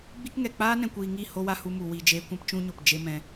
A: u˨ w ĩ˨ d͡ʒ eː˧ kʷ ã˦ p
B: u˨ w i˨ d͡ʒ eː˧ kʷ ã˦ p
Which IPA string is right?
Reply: B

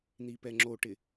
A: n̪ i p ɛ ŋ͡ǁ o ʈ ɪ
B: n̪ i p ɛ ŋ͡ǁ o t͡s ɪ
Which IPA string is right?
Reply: A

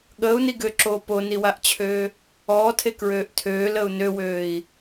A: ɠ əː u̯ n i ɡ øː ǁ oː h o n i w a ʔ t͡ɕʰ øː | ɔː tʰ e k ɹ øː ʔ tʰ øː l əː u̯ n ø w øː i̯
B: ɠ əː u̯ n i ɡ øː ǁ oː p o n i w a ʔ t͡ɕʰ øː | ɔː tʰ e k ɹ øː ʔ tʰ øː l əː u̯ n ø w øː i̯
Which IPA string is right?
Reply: B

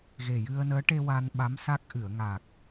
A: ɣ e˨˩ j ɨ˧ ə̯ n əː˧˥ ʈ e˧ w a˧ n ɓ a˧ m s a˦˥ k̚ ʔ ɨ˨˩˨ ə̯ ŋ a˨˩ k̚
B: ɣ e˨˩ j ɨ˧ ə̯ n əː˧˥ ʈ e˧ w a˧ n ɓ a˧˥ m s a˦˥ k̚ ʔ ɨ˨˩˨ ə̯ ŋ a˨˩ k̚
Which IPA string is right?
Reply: B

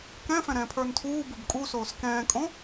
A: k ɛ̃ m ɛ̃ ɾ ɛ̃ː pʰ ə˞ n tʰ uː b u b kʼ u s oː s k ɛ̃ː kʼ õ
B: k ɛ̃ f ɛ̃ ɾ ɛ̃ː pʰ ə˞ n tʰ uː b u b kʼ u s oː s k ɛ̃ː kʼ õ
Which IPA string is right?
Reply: B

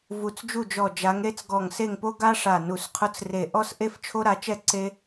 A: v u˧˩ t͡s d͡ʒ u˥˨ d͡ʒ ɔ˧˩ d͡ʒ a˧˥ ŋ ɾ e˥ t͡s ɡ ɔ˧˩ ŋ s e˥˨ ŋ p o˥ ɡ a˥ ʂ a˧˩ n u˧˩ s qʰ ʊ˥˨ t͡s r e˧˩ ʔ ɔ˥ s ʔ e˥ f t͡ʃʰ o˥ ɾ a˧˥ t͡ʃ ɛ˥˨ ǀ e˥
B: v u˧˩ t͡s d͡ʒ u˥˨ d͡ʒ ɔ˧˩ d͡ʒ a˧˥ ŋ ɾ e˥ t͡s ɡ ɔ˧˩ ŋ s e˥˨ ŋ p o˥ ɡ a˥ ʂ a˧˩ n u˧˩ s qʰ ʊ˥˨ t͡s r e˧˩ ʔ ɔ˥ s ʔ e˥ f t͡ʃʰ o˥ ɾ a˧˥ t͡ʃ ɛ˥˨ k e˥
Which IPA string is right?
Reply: A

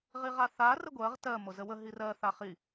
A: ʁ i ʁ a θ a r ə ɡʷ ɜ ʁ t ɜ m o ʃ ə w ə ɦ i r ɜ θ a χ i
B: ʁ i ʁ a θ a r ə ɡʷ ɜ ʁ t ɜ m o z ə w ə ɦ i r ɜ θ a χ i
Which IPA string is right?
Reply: B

